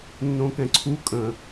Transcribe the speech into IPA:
nː õ k ɛ̃ ǀʰ u kʼ ə̃

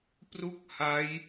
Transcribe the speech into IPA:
p r u˥˩ k̚ h a˦˥ j

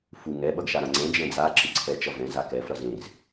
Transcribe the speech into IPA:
f u ŋ ɛ ɓ ʌ ɡ ʃ a ɾ ã ŋ͡ǀ ɛ̃ d͡ʒ ɛ̃ d͡z a ǁ ɯ ǀʰ ɛ t͡ʃ ʌ v ɛ̃ z a k ɛ f ɾ ʌ z ẽ z

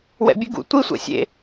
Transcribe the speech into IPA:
w ɛ̰ bʲ ɨ ɡ ṵ tʷ i sʷ ɛ̰ sʲ ḛ

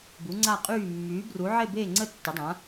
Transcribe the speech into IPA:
b u˨˥ ŋ͡ǀ a˥˨ qʼ yː˥˨ mː yː˨˥ b r u˨˥ ʕ e˥˨ b eː˥˨ ŋ͡ǀ ə˥˨ tː ɘ˨˥ dˤ ã˨˥

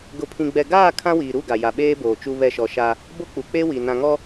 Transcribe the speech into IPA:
ɡ ʊ˨ pʰ ĩ˨ ɡ͡b ɛ˨ ɡ aː˦˨ kʰ ã˦ w iː˨ ɾ u˦˨ ɡ a˨ j a˨ ɓ eː˦ b oː˨ t͡ʃ u˦ β ɛ˦˨ ʃ ɔ˨ ʃ a˦ | b o˦ k͡p u˨ k͡p e˦ w i˨ n ã˨ ŋ ɔ˦

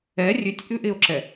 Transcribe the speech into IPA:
ɛ rʲ ʉ tʲ ʔ ʉ ʔ ɪ o̯ ǁ ɛ

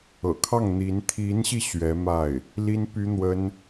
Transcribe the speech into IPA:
ɤ̰˨˩ kʰ ɑ˥˩ ŋ n̪ i˧˥ n t̪ʰ i˧˥ n ɕ i˧ ɕ ɥ ɛ˧˥ m a˥˩ ɪ̯ | l i˥ n p y˥ n̪ w ə˥ n

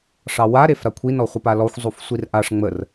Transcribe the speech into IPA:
ʂ ɑ w a ɾ e f ɾ a kʷʰ i n ɔ χʷ ə p a l ɔ xʷ zˤ u f sʷ i r ʔ a ʂ ŋ͡m ə r

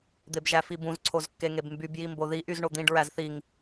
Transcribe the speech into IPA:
d̪ e b ʒ æ f i b ũ z ǀʰ o z kː e ŋ e b m b y b j i m b o ð i ʔ y z ɳ o d̪ ĩ ɖ ɹ æ z θ i ŋ

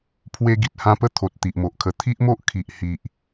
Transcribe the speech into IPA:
pʰ w e˦ ɡ i˨ t̚ h ã˦ p ə˥˧ t̪ʰ o˨ t̚ t̪ i˨ ʔ m o˨ ʔ kʰ ə˧ t̪ʰ i˦ ʔ m o˦ ʔ kʰ i˨ ʔ h i˨ ʔ

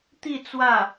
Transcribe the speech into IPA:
t̪ i˥˧ t͡s w ä˥˩

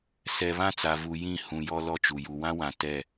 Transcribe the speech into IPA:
s ɛ˨ β ã˦ t͡s a˨ v u˨ j ĩ˦˨ h ũ˨ j ɔ˦ l ɔ˦ t͡ʃ u˨ j u˨ w ã˦ w ã˨ t ɛ˦˨

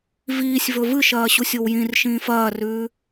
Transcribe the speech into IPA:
v iː sʲ v ɵ v ɨ ʃ ɐː ɕ u sʲ o w j ĩ r ʃ ĩː f ɐː r ʉː

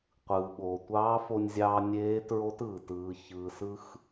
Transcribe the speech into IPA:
qʷ ɯː˩ ɓ oː˩ tʷ ɑː˧˥ f o˧ nʲ zʲ ɑː˧ nʲ eː˧˥ t ɹ o˧˥ t ɯː˩ t ɯː˩˧ ç ɯː˩ s ɯ˧ x

